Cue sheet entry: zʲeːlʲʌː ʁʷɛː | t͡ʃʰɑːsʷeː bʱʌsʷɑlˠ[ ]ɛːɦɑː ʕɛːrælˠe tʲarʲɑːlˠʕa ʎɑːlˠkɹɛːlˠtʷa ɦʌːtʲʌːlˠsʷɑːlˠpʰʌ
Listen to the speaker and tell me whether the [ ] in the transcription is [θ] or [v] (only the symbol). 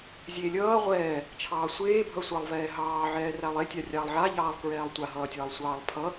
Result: v